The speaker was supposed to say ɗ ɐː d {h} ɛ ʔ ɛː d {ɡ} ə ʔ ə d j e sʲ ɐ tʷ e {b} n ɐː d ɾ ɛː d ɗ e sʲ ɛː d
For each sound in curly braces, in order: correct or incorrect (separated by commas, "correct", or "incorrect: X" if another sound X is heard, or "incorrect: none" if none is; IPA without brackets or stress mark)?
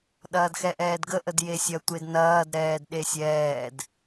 incorrect: x, correct, incorrect: d